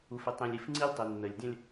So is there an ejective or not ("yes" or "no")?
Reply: no